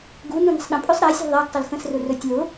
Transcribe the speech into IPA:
ɡ u n ũ n ə̤ sˤ ɗ ə̃ pʼ ɵ sˤ ɾ a sʲ ṳ ðˤ a ɡ tˤ ʊ l x ə̃ s r ʊ r ɵ tʲ l ʊ

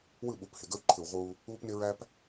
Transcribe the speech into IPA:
w ɯ˦˨ ɓ u˨˦ p h ɪ˨ ɡ ə˦ w ǃʰ ɯ˨ w ʁ uː˦ | uː˦ p n ɪ˦ ɹ æ˦ p

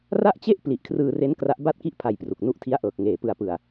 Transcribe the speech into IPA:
r a˥˩ ʔ t͡ɕ e˥˩ ʔ p l i˨˩ ʔ kʰ r ɯː˧ r e˦˥ n k r a˦˥ ʔ b a˥˩ t̚ k i˥˩ ʔ pʰ a˧ j p r u˨˩ k̚ n u˦˥ ʔ tʰ i˦˥ a̯ ʔ ɤː˨˩ k̚ ŋ eː˨˩ p ɯ˧ a̯ p ɯ˨˩ a̯

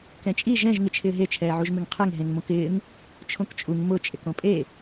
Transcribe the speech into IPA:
k ɛ̃ t͡ʃʼ i ʒ ɛ̃ ʒ ŋ ɪ t͡ʃʰ ɪː ɦ e t͡ʃʰ ɛː ʕ u ʒ m ɪ ŋ qʰ ɛ ŋ ɦ ẽ ŋ m õ k ɪː ŋ | t͡ʃʰ õ k t͡ʃʼ u ŋ m ʊ t͡ʃʼ ɪ k õ pʼ e

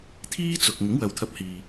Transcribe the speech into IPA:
t̪ʰ iː˥ t͡s ʊ˨ k̚ ŋ ɪ˨˥ ŋ w ɐ˨ w t̪ʰ ɐ˧ p̚ h iː˨

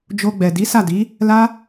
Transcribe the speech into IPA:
d͡ʒ o˧ ɡ͡b ɛ˨ d i˨˦ s a˦˨ d i˨˦ | l a˦

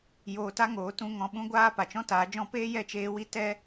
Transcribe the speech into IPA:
j oː˧ t a˦ ŋ oː˨˦ t ũ˧ ŋ ɔ̃˧ ɓ ũ˦ ɡʷ aː˦ p a˨ t͡ʃ ɔ̃˦ t aː˨˦ d͡ʒ ɔ̃˦ p eː˦ j ɛ˦˨ t͡ʃ eː˧ w i˦ t ɛ˦

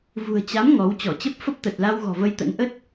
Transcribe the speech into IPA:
v ṳ˨˩ ə̯ t͡ɕ a˨˦ m ŋ ɔ˨˦ w t͡ɕ ɔ˧˩ t͡ɕ ə˦˥ p̚ f ə˦˥ p̚ t̪ ə˨˩ t̚ l a˧ w ɣ ɔ̤˨˩ v ə˧ j t̪ ə̰˧˥ n ʔ ə˦˥ t̚

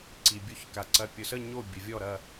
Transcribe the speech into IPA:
ǀ i˨ bʲ o˦˨ ç k a˨ ǀ ɐ˨ pʲ ʊ˨ s ə˦˨ ɲ o˦˨ bʲ ə˨ vʲ ɔ˦˨ ɾ ɐ˦˨

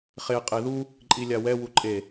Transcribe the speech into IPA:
χ e qʼ e ð u | ǃʼ i lʲ a w ɛ w u ǃʼ e

